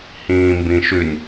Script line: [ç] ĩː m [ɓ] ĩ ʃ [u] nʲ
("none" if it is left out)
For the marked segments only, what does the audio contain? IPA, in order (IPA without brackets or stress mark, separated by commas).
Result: h, b, ʉ